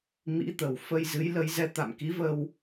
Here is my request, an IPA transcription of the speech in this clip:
m ḭ˧˥ t̪ ə˨˩ w f ə˧ j z ɨ˨˦ j l ə˨˦ j z ɛ˧ t̪ a̰˧˨ m k i˨˦ v ə˧ w

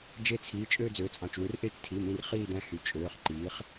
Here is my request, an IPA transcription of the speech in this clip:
d͡ʒ e˦˥ t͡sʰ iː˩˧˩ t͡ʃʼ øː˥˧ d͡z øː˩˥ t͡sʼ ɑ̃˩˧˩ t͡ʃ w ɯ˩˥ r ʔ eː˦˥ t͡ʃ tʰ i˩˧˩ m ĩ˥˧ r χ iː˥˧ d̪ æ̃˦˥ h y˩˧˩ t͡ʃʼ øː˩˧˩ χ ǃ iː˩˥ χ

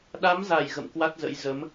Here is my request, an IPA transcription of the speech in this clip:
ɗ a˨˦ m z a˧˩ j ɣ ə̰˧˨ m k w a˦˥ t̚ z ə̰˧˥ j z ə˨˦ m

